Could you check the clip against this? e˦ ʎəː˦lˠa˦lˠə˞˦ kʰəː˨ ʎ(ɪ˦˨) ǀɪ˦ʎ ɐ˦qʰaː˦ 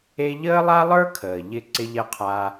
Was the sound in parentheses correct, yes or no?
yes